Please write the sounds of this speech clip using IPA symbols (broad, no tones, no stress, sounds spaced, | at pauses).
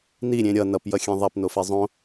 n i ɾʲ ẽ ɾʲ ʌ n ʌ p j ʌ xʲ ẽ ðˤ a p n o f e zˤ õ